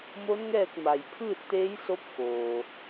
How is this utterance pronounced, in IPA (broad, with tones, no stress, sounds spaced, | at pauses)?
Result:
m o˧˥ n ŋ ɛː˥˨ k̚ m a˩ j pʰ ɯː˥˨ t̚ t̪ eː˧˥ j s o˧˥ p̚ k oː˩